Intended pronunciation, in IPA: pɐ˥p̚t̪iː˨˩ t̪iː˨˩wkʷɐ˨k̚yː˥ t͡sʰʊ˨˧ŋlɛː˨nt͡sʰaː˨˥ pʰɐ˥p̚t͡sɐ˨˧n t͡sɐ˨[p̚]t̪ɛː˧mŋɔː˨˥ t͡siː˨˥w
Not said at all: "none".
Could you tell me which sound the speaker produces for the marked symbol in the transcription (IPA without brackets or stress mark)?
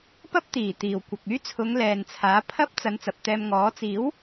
p̚